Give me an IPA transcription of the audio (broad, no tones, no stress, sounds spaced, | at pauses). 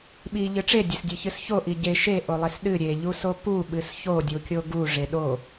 ɓ i ʎ ɨ ʈ͡ʂ e dʲ e s dʲ e ç ɨ s ç o ʔ i ɟ e ʃ e ʔ o lˠ e s ɗ ɨ ɾʲ e ʎ u s o p u ɓ ɨ s ç o dʲ u kʲ o ɡ u ʐ e ɗ o